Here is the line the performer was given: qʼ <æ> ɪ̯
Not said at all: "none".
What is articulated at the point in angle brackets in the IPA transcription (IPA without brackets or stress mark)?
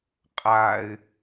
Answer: a